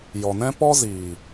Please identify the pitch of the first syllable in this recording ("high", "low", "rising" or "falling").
low